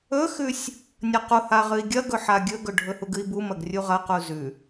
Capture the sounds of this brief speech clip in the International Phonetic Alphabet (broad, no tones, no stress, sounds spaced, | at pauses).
ɵ x ʉ sʲ | nʲ ɐ q u h a ʁ ɨ i̯ ɡʲ ɐ ɡ ɵ ħ a ɡʲ ɵ ɡ ɵ ɖʱ ɵ h u ɡ ɨ i̯ b u m ɐ ɡ rʲ u ʁ ɐ q u z ʉ